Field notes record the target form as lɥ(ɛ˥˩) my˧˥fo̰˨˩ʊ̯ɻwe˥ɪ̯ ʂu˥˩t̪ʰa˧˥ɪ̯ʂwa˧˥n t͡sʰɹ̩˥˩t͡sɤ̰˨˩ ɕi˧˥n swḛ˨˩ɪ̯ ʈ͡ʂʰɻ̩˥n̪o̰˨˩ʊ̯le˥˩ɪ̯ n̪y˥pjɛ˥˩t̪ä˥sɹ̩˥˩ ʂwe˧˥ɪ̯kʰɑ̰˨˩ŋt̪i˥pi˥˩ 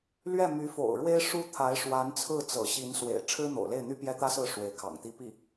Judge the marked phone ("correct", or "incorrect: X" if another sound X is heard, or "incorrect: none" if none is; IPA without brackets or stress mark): correct